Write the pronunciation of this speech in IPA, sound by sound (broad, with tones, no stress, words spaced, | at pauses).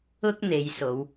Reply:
ʊ˥k̚ n̪e˨˧jso˨˧w